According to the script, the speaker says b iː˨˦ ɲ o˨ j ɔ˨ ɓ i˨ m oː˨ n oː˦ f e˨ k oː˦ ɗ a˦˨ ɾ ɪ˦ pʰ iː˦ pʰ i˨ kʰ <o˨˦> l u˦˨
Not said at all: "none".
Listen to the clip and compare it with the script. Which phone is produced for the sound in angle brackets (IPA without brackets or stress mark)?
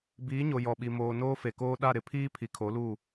o˨˦